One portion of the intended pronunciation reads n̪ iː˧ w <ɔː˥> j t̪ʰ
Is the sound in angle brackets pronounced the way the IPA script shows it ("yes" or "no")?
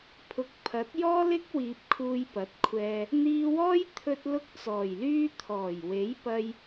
yes